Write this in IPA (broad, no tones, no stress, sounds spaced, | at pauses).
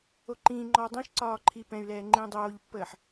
o ǃ ĩ ŋ͡ǃ ɔ dˤ ɛ̃ ʃ ǀ ɒː ǃʰ i p ɛ̃ y̯ l ɛː ŋ͡ǃ ĩ dˤ oː ʎ pː əː ħ